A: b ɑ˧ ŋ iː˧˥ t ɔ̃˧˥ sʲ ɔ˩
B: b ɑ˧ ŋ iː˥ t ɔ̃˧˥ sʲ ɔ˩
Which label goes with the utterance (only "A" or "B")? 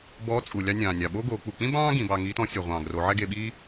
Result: A